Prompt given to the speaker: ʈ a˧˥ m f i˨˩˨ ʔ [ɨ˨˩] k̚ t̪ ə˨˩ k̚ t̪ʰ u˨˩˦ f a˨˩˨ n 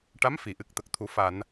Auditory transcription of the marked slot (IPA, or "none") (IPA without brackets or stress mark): ɨ˨˩